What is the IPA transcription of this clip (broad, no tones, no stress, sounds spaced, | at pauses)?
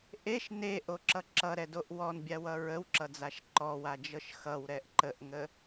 ʔ e ʃ n e ʔ o ǁ ʌ ǁ ʌ ɾ ɛ d o ʔ w ɔ n bʲ a w ʌ ɹ ə w ǁ ʌ d͡z a ʃ ǃ ɔ w a d͡ʒ ɤ ʃ x ʌ w ɾ ɛ ʔ ǃ ə ʔ ŋ ə